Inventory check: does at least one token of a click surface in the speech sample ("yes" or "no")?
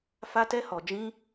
no